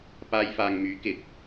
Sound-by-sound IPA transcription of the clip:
p aː˧ j f aː˨ ŋ m yː˨˥ k ɪ˨˥ k̚

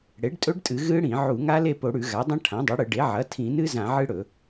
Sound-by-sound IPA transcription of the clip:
ɽ e˩˥ ɖ tʼ ɵ˦˥ ɖ tʼ ɨ˧˩˧ ɣ ɨ˦˥ ɽ ĩ˧˩˧ ʕ u˧˩˧ ŋ a˦˥ l e˥˨ p o˧˩˧ ɽ ʉ˧˩˧ ɣ a˩˥ dˤ ɐ̃˦˥ ʈʰ ã˩˥ dˤ u˩˥ ɽ ɨ˧˩˧ ɖ e˩˥ ʕ ɐ˩˥ tʰ ĩ˧˩˧ n ɨ˦˥ z ã˧˩˧ ʕ ɨ˦˥ ɽ ɵ˧˩˧

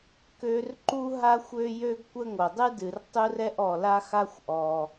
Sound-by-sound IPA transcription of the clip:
k ø˥ r ǃ u˥ ɦ a˥ xʷ ø˥ j ø˥ ɡ kʷ ə˥ ŋ o˩ dˤ ɨ˥ d ɨ˩ r tˤ u˥ r ɛ˥ ʔ ɔ˩ l a˥ x a˥ xʷ ʔ ɔ˩

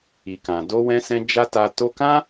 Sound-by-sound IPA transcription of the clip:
i˨ k ã˨ d o˧ w ɛ̃˧ s ɛ̃˧ d͡ʒ a˦ t a˧ t o˧ k ã˦

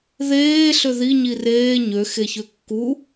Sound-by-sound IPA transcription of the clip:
ð eː ɬ ø ð i ɲ i r eː ɲ ø x e ç ø kː u

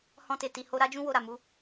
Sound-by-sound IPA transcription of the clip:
h ɔ̃˧ t e˨ t i˨ h o˧ ɾ a˦ d͡ʒ ũ˦ w o˧ ɾ a˨ m u˨˦

